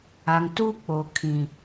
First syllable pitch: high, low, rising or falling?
low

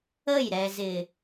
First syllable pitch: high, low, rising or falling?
falling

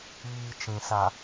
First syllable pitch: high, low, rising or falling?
low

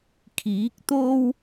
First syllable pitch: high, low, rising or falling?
rising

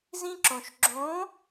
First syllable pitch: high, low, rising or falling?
high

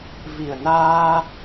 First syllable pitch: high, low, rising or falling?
low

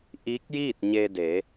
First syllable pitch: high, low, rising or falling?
rising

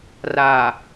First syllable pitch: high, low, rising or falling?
low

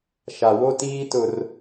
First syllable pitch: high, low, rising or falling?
low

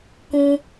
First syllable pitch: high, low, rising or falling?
high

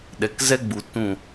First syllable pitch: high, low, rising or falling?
low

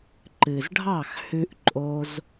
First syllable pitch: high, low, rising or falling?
low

